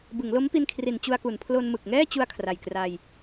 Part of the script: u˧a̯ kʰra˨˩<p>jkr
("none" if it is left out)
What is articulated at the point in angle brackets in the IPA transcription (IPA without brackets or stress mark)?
none